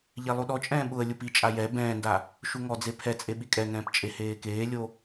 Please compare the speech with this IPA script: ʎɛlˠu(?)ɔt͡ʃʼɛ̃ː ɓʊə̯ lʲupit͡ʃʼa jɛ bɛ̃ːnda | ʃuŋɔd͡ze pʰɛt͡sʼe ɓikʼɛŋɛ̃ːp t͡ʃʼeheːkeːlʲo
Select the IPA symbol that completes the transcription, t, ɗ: ɗ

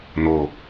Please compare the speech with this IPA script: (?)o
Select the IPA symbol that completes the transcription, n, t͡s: n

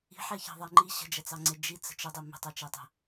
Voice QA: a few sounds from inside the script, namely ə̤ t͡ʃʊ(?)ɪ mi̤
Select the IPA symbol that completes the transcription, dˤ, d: dˤ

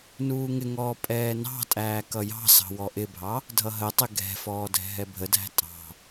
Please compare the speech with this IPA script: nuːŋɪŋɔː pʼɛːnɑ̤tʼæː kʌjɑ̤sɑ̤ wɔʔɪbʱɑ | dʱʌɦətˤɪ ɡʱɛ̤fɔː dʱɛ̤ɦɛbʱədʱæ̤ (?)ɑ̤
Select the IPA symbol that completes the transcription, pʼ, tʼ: tʼ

